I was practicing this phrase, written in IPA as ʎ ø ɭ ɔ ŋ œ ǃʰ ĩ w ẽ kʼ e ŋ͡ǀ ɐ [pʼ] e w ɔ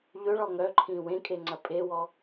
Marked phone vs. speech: correct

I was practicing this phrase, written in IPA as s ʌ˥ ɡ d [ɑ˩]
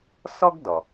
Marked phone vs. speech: incorrect: ʌ˩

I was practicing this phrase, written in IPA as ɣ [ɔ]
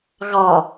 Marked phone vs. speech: incorrect: ɑ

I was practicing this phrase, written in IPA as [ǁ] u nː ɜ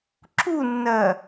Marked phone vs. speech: correct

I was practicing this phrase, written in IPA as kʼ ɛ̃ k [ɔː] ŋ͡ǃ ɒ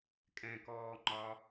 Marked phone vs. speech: correct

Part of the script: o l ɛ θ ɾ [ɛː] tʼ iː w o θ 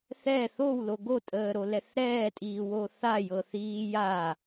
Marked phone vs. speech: correct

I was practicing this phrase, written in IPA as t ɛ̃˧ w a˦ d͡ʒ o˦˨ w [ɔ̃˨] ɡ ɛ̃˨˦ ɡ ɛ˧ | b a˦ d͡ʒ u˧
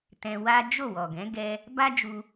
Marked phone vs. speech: incorrect: ɔ˨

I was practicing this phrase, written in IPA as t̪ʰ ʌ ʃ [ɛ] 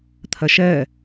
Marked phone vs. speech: incorrect: ɜ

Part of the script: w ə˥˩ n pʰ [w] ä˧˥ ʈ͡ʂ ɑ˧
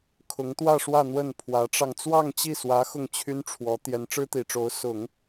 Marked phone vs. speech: correct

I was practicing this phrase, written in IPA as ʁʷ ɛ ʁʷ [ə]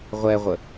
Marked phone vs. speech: correct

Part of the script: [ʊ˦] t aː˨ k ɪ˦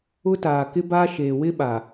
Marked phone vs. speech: correct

